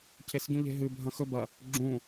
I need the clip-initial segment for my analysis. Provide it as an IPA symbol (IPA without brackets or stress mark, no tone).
cʰ